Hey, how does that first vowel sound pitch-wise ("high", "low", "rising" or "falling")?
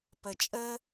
low